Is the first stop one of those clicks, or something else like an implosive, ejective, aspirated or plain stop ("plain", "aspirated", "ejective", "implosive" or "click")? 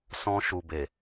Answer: plain